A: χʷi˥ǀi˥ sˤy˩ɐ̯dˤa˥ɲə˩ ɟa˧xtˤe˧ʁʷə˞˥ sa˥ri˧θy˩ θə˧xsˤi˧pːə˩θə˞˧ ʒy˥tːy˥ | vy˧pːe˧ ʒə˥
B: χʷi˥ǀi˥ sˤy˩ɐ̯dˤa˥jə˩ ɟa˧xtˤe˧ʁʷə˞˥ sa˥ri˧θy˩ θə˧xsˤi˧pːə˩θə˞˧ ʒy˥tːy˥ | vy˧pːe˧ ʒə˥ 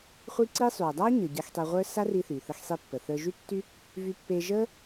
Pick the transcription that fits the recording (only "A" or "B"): A